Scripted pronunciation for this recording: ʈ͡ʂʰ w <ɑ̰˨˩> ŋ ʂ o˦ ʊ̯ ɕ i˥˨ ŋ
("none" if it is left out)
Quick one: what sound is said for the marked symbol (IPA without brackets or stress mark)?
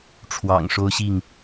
ɑ̰˨˩